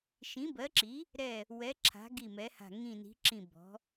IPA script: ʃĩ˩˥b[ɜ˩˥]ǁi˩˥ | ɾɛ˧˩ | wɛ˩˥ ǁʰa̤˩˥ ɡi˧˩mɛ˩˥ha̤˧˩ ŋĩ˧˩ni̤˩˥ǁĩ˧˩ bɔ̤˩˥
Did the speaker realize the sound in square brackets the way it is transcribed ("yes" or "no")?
yes